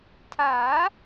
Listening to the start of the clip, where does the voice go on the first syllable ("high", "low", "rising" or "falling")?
rising